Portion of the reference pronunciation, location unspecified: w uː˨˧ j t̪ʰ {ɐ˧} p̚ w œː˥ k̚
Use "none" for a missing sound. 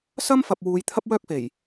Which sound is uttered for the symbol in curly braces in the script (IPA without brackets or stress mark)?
ɐ˥